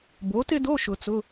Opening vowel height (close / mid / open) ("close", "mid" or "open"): mid